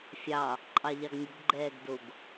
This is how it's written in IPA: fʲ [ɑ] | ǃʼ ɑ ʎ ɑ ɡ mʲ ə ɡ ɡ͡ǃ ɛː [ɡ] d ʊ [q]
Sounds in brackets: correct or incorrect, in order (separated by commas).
correct, correct, incorrect